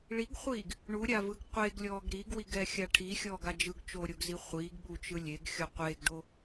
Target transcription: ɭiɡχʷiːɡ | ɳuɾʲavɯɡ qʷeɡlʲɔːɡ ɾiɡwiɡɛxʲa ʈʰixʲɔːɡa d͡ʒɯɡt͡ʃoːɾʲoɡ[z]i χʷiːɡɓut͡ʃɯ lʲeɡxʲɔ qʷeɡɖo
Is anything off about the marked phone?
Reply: no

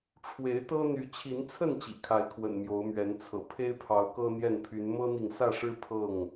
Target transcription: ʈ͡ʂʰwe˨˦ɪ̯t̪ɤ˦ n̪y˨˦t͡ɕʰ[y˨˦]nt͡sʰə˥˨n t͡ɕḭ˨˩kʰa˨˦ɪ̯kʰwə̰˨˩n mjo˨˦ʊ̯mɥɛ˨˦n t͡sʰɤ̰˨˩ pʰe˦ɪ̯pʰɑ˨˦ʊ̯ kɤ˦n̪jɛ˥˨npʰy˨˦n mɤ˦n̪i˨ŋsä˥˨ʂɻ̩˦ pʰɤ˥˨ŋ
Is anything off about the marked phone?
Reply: yes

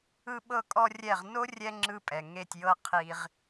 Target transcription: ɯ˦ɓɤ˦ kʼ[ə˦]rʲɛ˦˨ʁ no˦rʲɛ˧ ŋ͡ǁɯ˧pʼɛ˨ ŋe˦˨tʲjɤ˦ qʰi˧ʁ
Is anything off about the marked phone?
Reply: yes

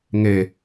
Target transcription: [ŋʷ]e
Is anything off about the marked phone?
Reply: yes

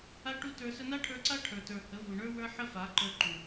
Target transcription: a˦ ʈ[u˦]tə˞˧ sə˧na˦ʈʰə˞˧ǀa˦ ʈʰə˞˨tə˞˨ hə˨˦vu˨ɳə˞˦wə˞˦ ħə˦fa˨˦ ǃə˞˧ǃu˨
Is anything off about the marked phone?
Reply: no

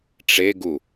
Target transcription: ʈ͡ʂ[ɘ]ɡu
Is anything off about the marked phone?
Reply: yes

